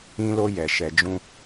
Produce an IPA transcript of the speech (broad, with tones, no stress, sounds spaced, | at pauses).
ĩ˧ l o˧ j ɛ˨ ʃ ɛ˨ d͡ʒ ũ˧